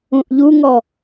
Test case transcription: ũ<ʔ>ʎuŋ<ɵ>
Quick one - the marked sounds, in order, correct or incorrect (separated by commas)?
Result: correct, incorrect